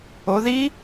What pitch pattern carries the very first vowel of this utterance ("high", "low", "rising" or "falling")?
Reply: rising